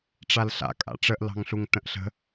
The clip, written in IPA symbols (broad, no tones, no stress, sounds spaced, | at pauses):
ʈ͡ʂ a l ɬ a̰ kʼ a̰ ʈ͡ʂ ə ʔ l ɑ̤ ŋ ɬ u ŋ t ə̃ ʔ ɬ ə̤